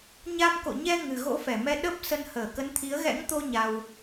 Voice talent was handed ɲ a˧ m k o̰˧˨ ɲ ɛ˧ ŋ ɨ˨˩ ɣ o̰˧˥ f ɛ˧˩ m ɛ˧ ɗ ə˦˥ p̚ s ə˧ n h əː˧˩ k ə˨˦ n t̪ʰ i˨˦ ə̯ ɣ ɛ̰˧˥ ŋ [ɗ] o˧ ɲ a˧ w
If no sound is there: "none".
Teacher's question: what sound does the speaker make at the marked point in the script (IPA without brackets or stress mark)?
t̪